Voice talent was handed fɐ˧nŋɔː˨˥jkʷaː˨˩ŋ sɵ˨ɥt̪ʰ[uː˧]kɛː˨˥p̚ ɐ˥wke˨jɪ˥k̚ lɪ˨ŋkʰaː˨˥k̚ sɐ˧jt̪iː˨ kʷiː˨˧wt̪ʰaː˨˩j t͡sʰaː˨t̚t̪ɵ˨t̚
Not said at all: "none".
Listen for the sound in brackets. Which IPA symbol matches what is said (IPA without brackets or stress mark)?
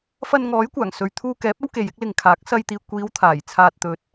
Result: uː˧